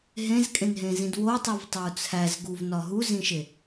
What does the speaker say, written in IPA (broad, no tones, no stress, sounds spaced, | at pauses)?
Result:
ɦ ẽ z kʼ ẽ n ɦ ẽ z ĩ d w o tˤ i v tˤ u t͡sʰ æ z ɡ u v n ɒ ɦ u z ĩ ʃ e